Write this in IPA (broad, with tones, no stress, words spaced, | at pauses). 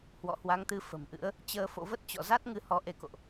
hwɔ̰˧˨hwa˨˦ŋt̪ɨ˨˦ fə̤˨˩mʔɨ̰˧˥ə̯ | t͡ɕəː˧fo̰˧˨və˦˥t̚ t͡ɕɔ̰˧˨za˦˥t̚ŋɨ˧ hɔ˨˦ʔe˧ko̰˧˨ʔ